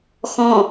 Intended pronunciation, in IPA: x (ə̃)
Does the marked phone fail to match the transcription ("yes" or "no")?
yes